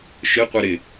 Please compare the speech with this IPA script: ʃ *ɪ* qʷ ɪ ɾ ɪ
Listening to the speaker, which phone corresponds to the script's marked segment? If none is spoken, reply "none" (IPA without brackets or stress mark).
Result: ɪ